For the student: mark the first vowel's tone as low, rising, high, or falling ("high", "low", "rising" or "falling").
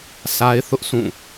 high